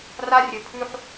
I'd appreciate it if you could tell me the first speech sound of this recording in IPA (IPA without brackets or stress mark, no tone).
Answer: r